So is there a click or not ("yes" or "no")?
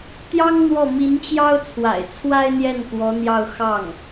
no